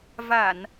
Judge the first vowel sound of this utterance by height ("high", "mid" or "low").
low